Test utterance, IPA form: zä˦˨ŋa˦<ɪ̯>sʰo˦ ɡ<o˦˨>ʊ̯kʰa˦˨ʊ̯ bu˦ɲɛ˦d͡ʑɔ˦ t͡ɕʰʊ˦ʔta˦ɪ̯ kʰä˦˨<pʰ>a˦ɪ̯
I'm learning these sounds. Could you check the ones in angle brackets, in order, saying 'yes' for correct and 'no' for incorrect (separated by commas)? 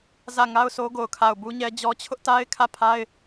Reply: no, yes, yes